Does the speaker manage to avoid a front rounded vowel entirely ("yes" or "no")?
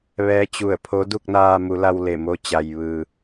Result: yes